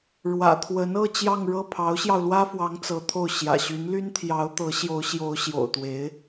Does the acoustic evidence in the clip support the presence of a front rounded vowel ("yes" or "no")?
yes